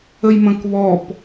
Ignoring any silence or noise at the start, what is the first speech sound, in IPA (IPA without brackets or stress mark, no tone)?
ə